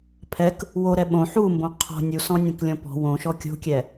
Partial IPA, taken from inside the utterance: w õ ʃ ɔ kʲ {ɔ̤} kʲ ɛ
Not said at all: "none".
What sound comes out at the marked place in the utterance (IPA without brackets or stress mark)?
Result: o̤